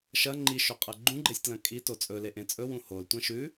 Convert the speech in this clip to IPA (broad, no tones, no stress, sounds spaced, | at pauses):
ʃ ɐ ŋ͡ǃ i ʃ ɵ qʼ ɐ ɡ͡ǃ ũ ɡ͡ǃ e sʲ t l ɐ̃ kʼ i t o t͡sʼ ɵ l e ʔ ẽ t͡sʼ ɵ w ũ h o l tʷ ɐ̃ ʃ ʉ